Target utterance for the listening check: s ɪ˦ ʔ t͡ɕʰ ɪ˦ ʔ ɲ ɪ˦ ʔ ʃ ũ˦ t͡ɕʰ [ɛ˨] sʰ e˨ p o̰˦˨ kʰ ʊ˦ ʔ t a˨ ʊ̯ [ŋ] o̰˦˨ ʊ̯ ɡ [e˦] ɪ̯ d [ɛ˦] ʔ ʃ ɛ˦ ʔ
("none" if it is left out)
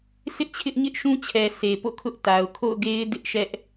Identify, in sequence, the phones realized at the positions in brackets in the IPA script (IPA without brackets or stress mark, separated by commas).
ɛ˨, kʰ, e˦, ɪ˦